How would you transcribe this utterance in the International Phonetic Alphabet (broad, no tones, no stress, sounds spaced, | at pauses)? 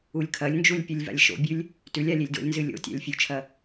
u lʲ kʰ ɐ lʲ n d͡ʒ u lʲ pʲ u lʲ v a̰ lʲ ʃ o̰ bʲ ʉ lʲ | t ʉ lʲ a lʲ e lʲ d o̰ lʲ n z ɨ lʲ o̰ tʲ a̰ lʲ fʲ u t͡ʃʰ ɐ